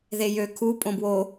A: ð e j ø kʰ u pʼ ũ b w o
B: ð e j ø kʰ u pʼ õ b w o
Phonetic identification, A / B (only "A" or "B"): B